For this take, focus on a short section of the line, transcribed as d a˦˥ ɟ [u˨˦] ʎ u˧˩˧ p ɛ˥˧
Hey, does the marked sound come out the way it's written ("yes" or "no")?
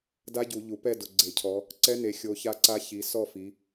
no